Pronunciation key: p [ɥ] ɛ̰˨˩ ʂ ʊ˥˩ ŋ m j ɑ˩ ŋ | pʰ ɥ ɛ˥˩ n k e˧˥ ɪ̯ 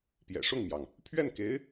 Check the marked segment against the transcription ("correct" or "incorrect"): incorrect